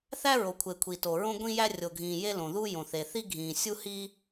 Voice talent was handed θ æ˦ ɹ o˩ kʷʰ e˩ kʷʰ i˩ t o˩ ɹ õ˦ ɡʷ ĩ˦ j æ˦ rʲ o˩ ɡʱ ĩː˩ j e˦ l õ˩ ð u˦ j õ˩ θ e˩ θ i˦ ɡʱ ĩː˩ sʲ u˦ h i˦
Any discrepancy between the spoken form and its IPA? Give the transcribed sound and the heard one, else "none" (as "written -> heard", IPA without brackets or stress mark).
none